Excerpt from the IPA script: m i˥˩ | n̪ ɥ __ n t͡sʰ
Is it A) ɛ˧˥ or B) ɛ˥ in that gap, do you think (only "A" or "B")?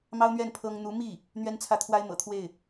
B